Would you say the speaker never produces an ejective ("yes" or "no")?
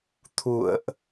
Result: yes